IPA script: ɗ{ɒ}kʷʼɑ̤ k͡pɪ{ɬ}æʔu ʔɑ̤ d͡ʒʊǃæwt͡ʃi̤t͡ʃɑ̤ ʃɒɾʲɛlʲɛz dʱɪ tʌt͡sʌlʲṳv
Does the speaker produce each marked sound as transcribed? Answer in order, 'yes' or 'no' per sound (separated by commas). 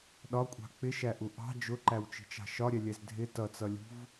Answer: yes, no